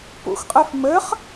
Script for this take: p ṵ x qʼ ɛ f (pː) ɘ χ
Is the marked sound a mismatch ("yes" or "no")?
yes